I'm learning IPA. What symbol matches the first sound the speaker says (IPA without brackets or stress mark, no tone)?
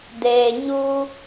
d